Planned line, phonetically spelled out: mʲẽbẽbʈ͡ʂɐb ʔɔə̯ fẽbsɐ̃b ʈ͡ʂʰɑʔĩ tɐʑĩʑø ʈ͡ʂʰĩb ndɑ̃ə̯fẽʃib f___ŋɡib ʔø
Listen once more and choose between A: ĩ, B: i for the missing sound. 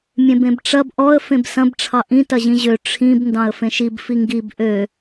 B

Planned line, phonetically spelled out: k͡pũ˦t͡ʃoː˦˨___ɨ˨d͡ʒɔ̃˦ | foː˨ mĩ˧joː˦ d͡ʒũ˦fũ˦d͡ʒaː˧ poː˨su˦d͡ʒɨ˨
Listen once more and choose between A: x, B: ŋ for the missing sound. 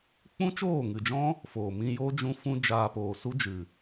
B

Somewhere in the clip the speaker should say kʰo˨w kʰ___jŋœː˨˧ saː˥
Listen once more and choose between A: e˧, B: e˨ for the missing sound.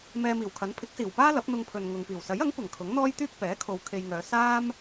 A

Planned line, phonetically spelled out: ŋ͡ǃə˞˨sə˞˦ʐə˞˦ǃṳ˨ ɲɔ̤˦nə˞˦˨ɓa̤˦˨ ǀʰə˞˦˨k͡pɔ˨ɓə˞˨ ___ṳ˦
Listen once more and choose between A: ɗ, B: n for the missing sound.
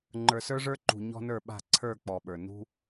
B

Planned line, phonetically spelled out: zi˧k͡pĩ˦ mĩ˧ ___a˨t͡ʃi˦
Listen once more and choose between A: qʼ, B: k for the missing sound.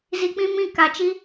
B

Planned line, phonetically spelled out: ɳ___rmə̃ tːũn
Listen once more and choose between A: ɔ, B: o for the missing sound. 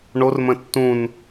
B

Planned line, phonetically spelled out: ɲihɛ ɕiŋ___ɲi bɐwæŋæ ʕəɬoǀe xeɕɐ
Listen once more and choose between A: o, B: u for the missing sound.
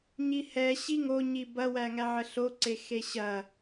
A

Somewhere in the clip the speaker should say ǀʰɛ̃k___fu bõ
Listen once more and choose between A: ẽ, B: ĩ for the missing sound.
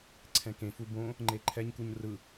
A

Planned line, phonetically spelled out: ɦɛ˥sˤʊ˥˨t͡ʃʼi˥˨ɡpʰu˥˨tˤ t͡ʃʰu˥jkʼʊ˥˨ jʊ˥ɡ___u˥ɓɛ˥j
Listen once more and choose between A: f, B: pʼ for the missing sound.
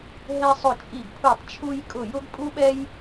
B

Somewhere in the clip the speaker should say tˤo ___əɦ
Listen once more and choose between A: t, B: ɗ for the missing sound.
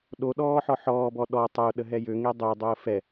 B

